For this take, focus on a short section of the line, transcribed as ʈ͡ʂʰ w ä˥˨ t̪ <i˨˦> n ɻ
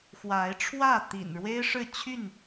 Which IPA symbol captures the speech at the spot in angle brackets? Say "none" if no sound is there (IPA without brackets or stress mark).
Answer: ḭ˨˩